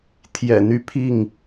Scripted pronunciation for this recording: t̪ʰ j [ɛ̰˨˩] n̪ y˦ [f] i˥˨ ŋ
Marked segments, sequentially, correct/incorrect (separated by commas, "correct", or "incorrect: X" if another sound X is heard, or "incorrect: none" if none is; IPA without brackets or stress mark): correct, incorrect: pʰ